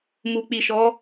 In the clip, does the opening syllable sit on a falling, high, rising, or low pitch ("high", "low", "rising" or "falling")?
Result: low